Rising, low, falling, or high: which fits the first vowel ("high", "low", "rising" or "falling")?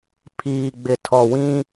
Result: low